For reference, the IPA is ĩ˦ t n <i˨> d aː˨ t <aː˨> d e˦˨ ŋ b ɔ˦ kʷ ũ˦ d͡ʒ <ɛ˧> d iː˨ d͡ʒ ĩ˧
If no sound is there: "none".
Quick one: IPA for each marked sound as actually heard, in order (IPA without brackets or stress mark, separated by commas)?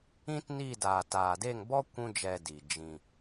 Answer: i˦˨, aː˨, ɛ˧